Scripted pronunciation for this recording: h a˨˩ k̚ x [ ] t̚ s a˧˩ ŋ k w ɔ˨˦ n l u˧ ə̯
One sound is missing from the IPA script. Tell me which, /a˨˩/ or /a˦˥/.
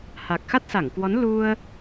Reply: a˦˥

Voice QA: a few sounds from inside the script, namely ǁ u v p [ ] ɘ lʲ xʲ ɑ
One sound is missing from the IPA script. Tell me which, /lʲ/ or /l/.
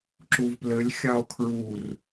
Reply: l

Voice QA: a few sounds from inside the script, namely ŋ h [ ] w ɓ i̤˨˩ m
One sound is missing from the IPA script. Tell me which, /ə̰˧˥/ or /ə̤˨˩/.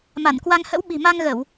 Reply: ə̰˧˥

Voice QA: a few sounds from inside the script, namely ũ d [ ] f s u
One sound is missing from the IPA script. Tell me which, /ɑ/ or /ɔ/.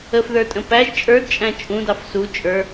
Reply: ɑ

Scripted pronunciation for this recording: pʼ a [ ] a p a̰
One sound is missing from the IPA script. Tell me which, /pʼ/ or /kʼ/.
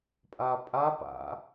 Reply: pʼ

